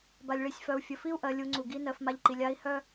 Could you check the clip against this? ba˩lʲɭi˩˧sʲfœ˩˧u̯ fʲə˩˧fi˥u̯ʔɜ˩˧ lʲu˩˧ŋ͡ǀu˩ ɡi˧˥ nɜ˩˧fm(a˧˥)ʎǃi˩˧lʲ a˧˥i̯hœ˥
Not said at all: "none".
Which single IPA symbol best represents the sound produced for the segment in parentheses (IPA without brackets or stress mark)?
a˧